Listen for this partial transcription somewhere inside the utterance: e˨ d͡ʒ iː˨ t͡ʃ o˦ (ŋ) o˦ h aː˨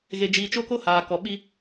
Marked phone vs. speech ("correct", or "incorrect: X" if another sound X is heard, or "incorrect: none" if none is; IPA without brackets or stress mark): incorrect: k